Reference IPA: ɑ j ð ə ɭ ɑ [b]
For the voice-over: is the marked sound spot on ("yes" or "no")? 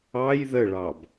yes